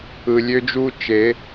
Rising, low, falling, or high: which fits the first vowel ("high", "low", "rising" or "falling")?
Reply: low